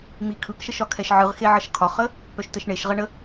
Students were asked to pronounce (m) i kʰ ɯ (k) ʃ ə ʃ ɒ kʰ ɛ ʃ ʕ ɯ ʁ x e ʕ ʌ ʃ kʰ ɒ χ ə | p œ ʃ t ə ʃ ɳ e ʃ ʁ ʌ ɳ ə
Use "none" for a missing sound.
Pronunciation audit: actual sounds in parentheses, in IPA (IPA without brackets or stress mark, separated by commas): m, k